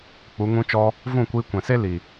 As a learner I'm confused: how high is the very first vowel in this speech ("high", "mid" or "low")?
high